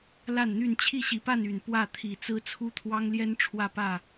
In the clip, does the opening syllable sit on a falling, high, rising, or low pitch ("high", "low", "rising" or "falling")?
falling